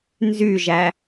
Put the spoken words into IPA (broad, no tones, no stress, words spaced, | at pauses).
nzyʒæ